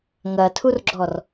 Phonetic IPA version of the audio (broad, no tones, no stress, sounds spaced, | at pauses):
ŋ ɐ tʰ u r ɡ͡ǁ ɔ r